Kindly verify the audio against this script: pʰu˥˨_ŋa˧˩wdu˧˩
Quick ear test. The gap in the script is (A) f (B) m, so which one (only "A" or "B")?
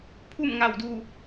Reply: B